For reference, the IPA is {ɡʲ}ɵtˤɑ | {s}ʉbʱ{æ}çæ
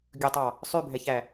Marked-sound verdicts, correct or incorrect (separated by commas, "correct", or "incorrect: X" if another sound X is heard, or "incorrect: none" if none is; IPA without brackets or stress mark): correct, incorrect: sˤ, incorrect: ɛ